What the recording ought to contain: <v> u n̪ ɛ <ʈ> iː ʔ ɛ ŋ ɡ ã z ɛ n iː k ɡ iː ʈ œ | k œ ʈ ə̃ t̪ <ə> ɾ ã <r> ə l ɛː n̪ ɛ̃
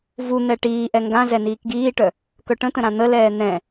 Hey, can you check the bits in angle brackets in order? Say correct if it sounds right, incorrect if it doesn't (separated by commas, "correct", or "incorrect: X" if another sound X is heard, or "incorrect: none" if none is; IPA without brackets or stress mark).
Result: correct, correct, incorrect: ə̃, incorrect: n̪